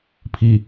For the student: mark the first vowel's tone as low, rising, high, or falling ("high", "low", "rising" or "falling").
low